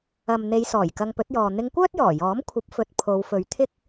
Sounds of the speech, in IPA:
ɐ˨ m n̪ e˨˧ j s ɔː˨˩ j k ɐ˧ ŋ p ɵ˨˥ t̚ j ɔː˨ n̪ ɪ˧ ŋ kʷ œː˥ t̚ j ɔː˨˩ j ɔː˨˥ m kʷʰ ɐ˨˥ p̚ f ɵ˨ t̚ pʰ o˨˧ w f ɵ˨˧ ɥ t̪ʰ ɪ˥ k̚

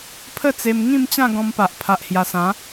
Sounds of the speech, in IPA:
pʰ ə˥˧ t͡s e˧ m ŋ ĩ˥˧ m t͡ɕ ã˥˧ ɡ ɔ̃˧ m p a˨ ʔ pʰ a˨ ʔ h j a˨˩ s ã˨˦

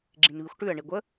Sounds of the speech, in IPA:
ɡ͡ǁ ĩ n β i xʷ ʈ ʉ ə̯ ɳ i ɡʷ ə

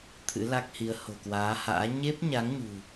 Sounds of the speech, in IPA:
t̪ʰ ɨ̰˧˥ l a˦˥ k̚ h i˨˦ ə̯ h o̤˨˩ k w aː˨˦ h a̰ː˧˥ ɲ e˦˥ p̚ ɲ a˨˦ ŋ ɲ ṳ˨˩

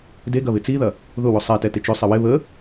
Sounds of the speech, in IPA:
d e ɡ ɐ β ɪ t͡s i ð ɐ | ð ʊ w ʊ sˤ ɛ t ɛ t ɪ t͡ʃ ʏ sˤ ɪ w ɪ β ə

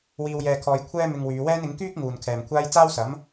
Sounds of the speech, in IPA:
w iː˧ w j ɛː˧ kʰ ɔː˧ j kʷʰ ɛː˥ m ɪ˧ ŋ w yː˨˧ w ɛː˥ n ɪ˨˥ ŋ k yː˥ k̚ ŋ uː˨ n kʰ ɛː˨ m kʷʰ aː˥ j t͡s aː˥ w s ɐ˨˥ m

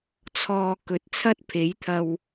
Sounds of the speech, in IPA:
t͡sʰ ɔː˧ k ɵ˨˥ t̚ t͡sʰ ɐ˥ t̚ pʰ e˨˥ j t̪ʰ ɐ˧ w

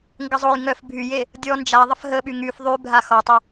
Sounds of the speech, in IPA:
ŋ ɡ ə zˤ o j ŋ œ f bʱ y j e | dʲ ɔ n d͡ʒ a ðˤ ə f ɦ ə ɓ y ŋ y f ðˤ y bʱ a x ɔ tˤ o

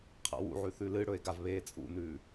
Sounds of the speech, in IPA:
qʰ a̰ w ṵ ʕ ʉ θ ʉ l ɨ ɽ ɵ e̯ ɡ a v β eː t͡sʼ ṵ n ʉː

